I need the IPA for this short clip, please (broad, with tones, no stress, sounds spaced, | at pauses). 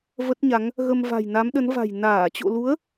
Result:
v ə˦˥ t̚ ɲ a˨˦ ŋ | ɣ ə˧ m v a̤˨˩ j n a˨˦ m ɗ ə˨˦ n v a̤˨˩ j n aː˧˩ t͡ɕ o̰˧˨ l u˨˦ ə̯